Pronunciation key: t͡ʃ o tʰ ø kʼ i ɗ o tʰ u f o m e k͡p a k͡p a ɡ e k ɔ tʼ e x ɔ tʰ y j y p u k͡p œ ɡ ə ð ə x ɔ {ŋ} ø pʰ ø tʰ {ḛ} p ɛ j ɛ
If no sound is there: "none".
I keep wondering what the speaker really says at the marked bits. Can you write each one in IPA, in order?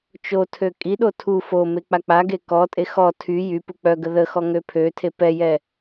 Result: ŋ, e

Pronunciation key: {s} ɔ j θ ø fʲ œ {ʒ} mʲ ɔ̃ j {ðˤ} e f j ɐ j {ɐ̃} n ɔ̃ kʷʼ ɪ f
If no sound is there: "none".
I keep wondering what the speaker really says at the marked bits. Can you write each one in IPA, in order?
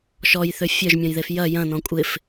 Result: ʃ, ʒ, ð, ɐ̃

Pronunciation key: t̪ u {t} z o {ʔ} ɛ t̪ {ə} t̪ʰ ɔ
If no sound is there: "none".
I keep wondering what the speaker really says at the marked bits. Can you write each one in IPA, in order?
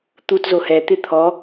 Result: t, h, ɪ

